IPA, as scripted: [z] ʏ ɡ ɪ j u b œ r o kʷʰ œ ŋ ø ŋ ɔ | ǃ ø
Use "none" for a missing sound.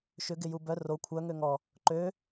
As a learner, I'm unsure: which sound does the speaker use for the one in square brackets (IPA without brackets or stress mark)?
ʃ